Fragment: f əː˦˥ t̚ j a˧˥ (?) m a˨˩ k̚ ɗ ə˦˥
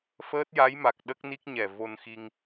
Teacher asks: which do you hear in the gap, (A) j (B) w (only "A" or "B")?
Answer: A